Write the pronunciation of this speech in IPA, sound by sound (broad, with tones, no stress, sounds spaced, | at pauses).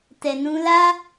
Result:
t ɛ˨ n ũ˧ l a˦